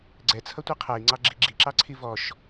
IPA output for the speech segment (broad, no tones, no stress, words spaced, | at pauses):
ɡ͡ǀɛt͡sʰʌtʷi qʰɛi̯ŋ͡ǀɑɡ͡ǁi ɡ͡ǁiǁɑǀʰi vɔʃ